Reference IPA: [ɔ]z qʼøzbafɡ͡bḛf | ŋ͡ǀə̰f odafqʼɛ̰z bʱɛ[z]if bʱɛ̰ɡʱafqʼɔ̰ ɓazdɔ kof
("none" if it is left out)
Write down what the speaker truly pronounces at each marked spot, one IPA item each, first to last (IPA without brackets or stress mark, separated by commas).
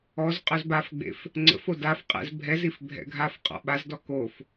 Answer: ɔ, z